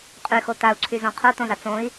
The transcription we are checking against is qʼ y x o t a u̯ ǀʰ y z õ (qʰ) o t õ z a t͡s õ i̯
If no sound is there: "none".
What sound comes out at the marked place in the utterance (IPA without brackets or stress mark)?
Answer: qʰ